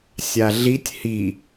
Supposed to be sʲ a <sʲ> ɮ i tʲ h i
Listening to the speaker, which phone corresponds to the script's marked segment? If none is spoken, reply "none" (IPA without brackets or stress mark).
none